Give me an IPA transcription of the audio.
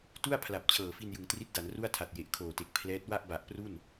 tu˥˩a̯pʰla˨˩p̚ t͡ɕʰɤː˨˩fi˧njɯ˩˦ŋ tri˦˥t̚da˩˦nru˥˩a̯tʰa˨˩t̚ je˨˩ʔkʰoː˨˩te˨˩k̚ pʰlɛː˦˥t̚ wa˥˩ʔba˨˩ʔpru˥˩n

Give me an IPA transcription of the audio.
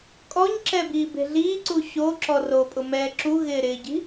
kʼɔɲǁɛ biːbe̤ɮiːǀu ɕoǁɔ ropʼʊ mɛːǁuɣɪː ɾɪːɟi̤

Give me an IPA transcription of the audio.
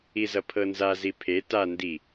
izʌpʰɤnza zipʰe ta ndi

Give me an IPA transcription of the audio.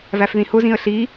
væfðĩhʊ zĩə̯ɬi

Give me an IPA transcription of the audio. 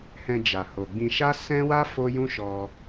hɛ̃˧ d͡ʒa˨ho˨ɡ͡bĩ˧ ʃa˦ sɛ̃˦wa˦ fo˦jũ˦ ʃɔ˧

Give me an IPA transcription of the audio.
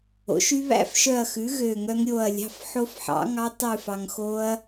o̰˩˥ʃy˦˥ βæ̰˦˥fʃœ˦˨ɐ̯xʉ˩˥ ɣø˦˨ŋœ˦˥ŋ ɾʲo˦˨ɐ̯lʲɑ̤˧˥˧f ħo˦˥fħɑ̰˩˥ŋɑ˦˥ tˤʉ˦˨fɑ˨ŋ xo˦˥ɐ̯

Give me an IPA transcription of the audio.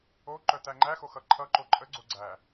oǃœ tæŋ͡ǃæxo xʌǃʰʌǃo ǃʼəɡ͡ǀo ɡ͡ǀæ

